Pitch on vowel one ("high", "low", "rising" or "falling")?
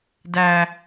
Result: high